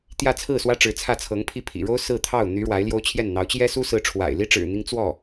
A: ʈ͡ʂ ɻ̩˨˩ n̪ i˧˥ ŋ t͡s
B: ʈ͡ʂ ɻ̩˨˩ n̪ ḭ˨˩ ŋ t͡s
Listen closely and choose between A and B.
A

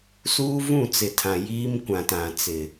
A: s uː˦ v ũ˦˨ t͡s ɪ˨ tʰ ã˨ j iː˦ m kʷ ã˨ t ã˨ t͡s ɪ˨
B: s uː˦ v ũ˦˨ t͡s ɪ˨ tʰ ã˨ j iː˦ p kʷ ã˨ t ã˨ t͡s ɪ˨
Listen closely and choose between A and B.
A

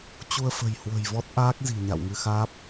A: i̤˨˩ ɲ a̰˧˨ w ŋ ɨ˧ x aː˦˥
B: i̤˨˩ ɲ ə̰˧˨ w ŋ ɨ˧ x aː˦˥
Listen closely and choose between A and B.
A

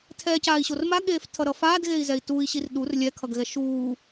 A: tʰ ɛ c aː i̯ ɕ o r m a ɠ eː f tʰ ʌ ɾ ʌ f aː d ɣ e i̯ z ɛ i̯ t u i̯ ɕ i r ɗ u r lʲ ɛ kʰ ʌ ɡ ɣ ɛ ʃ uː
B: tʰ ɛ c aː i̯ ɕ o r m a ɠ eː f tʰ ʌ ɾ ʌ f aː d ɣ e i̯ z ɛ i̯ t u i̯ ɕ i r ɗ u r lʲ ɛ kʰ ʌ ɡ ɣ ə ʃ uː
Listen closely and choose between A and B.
A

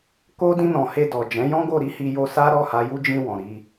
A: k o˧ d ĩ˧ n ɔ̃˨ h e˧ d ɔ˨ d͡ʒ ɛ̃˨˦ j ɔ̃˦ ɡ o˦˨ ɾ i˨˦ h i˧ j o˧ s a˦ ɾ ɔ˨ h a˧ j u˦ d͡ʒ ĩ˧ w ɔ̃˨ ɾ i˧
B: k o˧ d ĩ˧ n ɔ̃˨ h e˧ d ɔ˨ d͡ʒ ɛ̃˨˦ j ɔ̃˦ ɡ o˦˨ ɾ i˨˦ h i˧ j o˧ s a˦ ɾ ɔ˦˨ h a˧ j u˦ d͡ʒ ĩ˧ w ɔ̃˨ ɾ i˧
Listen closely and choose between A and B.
B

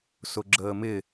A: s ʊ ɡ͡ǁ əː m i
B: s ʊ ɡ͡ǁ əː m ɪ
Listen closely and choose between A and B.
B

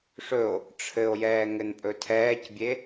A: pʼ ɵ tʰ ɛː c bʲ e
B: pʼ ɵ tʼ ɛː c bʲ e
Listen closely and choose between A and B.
A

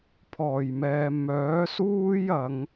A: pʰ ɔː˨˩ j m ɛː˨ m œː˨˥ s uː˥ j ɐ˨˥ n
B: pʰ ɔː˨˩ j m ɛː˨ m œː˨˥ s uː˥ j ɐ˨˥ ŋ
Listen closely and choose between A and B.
B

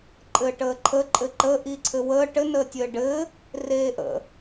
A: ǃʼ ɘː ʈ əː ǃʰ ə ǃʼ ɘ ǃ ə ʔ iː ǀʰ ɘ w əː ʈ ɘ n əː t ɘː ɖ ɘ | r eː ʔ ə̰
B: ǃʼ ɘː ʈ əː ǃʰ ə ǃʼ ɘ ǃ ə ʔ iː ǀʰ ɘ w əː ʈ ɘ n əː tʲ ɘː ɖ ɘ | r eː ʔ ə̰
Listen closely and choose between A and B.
B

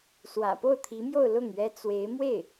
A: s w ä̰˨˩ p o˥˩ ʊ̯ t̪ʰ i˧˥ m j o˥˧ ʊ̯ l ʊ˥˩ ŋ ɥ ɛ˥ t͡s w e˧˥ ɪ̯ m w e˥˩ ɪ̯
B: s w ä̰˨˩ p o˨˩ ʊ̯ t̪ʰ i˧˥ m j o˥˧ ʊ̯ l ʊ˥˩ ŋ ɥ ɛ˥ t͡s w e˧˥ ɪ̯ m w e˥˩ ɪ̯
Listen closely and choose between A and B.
A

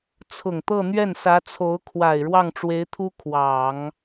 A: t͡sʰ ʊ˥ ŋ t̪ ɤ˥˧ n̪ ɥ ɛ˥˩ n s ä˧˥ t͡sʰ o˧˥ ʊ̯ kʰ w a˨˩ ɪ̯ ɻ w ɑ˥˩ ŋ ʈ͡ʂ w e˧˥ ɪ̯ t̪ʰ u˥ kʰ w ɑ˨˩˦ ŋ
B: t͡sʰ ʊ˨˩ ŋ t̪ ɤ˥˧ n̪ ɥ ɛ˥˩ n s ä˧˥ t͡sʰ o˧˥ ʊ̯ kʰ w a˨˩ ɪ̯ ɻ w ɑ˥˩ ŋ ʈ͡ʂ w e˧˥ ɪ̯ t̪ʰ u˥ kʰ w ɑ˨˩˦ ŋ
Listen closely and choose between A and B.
B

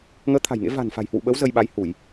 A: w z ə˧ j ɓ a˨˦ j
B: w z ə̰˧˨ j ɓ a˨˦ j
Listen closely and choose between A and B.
A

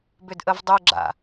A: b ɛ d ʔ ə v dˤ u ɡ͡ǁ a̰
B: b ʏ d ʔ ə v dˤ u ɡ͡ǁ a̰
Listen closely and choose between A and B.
B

